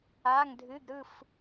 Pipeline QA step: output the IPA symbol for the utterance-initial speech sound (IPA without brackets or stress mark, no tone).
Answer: aː